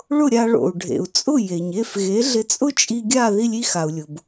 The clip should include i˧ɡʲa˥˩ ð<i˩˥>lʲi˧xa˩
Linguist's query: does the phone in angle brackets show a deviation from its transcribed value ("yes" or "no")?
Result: yes